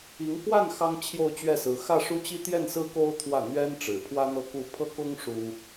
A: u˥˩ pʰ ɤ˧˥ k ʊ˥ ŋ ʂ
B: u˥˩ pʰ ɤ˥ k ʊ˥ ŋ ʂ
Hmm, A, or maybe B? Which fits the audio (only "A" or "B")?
B